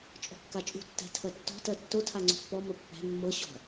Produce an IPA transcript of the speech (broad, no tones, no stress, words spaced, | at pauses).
t͡ʃʼɔ̤kːat͡ʃʼṳ tːæ̤tʰɜtːɔ̤ tɜtːo tʰaŋ͡ǀṳpːɔ məpːæ̤ mːɤ ɕɔ̤